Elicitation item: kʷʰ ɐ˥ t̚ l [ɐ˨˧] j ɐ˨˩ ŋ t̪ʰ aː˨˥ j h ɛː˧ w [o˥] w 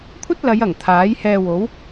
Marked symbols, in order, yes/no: yes, no

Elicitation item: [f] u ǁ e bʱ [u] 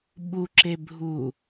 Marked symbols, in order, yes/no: no, yes

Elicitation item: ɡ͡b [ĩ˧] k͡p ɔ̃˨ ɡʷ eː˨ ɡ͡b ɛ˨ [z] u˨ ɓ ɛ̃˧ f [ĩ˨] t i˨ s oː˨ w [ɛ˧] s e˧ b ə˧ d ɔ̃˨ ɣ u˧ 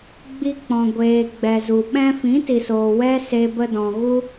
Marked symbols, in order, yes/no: no, yes, no, no

